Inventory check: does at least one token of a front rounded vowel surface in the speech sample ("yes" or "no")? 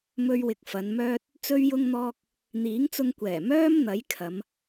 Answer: yes